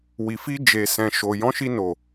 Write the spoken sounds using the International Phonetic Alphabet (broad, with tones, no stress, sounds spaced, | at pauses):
w i˨ f i˧ d͡ʒ e˨ s ɛ̃˨ ʃ o˨ j ɔ̃˨˦ ʃ i˧ n o˨